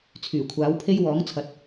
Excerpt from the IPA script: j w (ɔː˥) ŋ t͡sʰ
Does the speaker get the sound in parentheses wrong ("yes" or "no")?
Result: yes